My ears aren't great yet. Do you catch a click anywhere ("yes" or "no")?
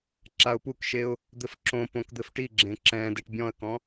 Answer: yes